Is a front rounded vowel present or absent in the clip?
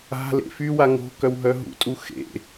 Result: present